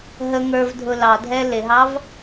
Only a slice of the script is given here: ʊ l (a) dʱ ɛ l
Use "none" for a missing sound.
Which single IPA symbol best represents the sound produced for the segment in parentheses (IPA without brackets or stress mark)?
ɑ